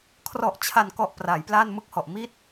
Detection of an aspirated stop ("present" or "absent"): present